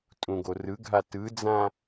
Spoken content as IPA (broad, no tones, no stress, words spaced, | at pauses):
tʼũɡorɯɡʱa tɯd͡zã